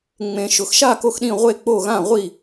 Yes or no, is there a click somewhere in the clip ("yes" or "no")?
no